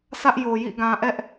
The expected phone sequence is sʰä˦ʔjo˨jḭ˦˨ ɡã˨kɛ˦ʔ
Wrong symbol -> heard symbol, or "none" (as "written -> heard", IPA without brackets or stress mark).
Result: k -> ʔ